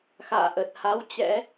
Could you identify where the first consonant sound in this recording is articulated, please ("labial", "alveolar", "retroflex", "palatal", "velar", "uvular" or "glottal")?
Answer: velar